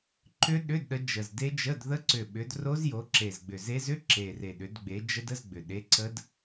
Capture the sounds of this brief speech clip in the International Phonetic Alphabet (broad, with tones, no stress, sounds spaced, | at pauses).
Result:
ǃ ʏ˦˥ ɗ ʏ˧˥˧ d ɗ ə˨˦ d͡ʒ ə˨˩ z d e˦˥ d͡ʒ ə˧˥˧ d ð ə˦˥ ǀ ʏ˨˩ ɓ ʏ˨˦ d r o˦˥ z j o˨˦ ǁ e˨˩ z ɡ͡b ʏ˨˩ z e˦˥ z ʏ˧˥˧ ǁ e˨˩ r e˨˩ ɗ ʏ˨˦ d ɡ͡b e˨˦ d͡ʒ ə˦˥ d ə˧˥˧ z ɡ͡b ʏ˨˩ ɗ e˧˥˧ ǀ ə˦˥ d